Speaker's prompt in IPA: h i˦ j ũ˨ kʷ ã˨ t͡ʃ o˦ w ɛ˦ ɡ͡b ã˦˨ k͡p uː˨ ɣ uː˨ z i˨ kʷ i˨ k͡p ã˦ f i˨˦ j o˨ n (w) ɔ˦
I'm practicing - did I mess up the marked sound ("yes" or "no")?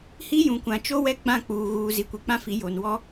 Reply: no